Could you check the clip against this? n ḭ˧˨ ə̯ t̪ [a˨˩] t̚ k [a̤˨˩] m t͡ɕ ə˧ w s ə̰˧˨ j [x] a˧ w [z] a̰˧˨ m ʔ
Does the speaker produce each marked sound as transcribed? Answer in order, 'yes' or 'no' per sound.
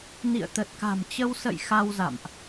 no, yes, yes, yes

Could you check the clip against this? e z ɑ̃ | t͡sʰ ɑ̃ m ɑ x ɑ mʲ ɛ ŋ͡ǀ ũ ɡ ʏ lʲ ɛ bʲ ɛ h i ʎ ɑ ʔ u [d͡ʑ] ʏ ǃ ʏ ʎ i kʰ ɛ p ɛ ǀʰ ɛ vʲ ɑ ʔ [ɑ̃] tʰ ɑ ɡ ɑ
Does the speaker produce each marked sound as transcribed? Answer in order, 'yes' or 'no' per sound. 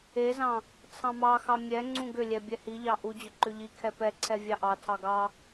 yes, no

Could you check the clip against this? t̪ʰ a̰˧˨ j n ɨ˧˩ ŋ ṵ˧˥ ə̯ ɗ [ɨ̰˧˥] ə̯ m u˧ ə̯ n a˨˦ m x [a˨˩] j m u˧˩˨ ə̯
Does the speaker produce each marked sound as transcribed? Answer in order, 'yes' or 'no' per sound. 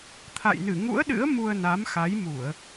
yes, no

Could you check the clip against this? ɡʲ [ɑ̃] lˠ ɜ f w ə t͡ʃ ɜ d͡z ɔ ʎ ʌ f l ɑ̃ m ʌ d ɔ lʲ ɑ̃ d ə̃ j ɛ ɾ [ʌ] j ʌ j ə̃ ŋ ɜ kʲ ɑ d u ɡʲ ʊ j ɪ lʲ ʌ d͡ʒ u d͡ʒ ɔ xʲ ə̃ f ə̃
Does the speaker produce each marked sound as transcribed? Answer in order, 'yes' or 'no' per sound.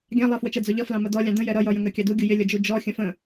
yes, yes

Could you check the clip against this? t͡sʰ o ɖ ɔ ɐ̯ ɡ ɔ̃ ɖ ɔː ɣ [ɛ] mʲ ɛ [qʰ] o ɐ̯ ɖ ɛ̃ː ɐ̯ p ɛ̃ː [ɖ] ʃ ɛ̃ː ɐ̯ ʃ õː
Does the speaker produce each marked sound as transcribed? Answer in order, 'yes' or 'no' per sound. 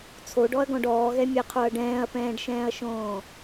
yes, yes, yes

